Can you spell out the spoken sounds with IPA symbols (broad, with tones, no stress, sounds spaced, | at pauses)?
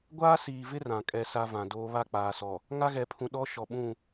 ɡʷ aː˦ s iː˨ v ɪ˦ r ã˨ kʼ ɛ˦ s a˦ v ã˨ d oː˦ β a˦˨ k͡p aː˨ s ɔ˨ | ŋ a˦ ɣ ɛ˨ pʰ ũ˨ ɗ ɔ˦ ʃ ɔ˨ ɓ ũ˦˨